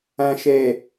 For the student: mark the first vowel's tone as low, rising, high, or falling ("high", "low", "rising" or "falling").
low